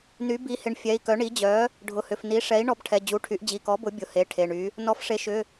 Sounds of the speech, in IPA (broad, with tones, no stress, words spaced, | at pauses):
ny˩˥bi˩˥hɪ˩˥ɳ fʲɛ˩˧˩i̯kœ˩˥ɳi˩˥d͡ʑœ˩˥ | ɖʱʊ˩˧˩hʏ˩˧˩fni˩˥ʂɛ˩˥i̯ ɳɔ˩˥bʈʰɛ˩˧˩d͡ʑu˩˧˩ʈʰy˩˥ʔ d͡ʑi˩˧˩kɔ˩˥bʊ˩˥ bʲʊ˩˧˩he˩˧˩ ʈʰe˩˧˩ɳy˩˥ | nɔ˩˥fʂe˩˥ʃʏ˩˧˩